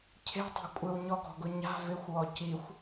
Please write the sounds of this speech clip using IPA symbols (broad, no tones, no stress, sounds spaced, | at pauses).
cʰ e̤ tˤ a̤ kʷʼ ɪ w ɲ ɔ ɡ ɔ̤ ɡ ʊ ɲ a̤ v ɪ xʷ w ɔ c i xʷ